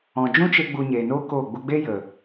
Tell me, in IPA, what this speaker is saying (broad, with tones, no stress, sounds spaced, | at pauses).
ɔ̃˨ d͡ʒ ũ˦ t͡ʃ e˧ ɡ͡b u˧ ɲ eː˨ n oː˦ k oː˦˨ ɡ͡b u˧ ɡ͡b e˦ j ə˨